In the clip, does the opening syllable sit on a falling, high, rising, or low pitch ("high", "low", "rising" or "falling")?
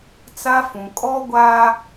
high